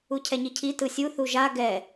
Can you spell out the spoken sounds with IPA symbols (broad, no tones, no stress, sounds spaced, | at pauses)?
u cʰ ɛ ɲ i cʰ i t ɯ sʲ u θ u ʒ a ɡ ɛ